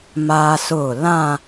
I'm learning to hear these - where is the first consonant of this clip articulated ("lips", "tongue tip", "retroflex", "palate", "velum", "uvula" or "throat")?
lips